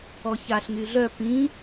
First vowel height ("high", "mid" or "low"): mid